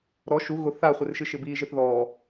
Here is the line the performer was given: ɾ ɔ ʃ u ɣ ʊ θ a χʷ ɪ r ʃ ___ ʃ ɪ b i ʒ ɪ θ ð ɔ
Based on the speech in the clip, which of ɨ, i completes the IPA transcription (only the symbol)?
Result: ɨ